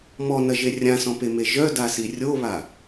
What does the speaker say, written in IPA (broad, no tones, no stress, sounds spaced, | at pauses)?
m ɔ n ɐ ʒ e rʲ ã s ɔ̃ p e m e ʒ œ d a s i rʲ o β a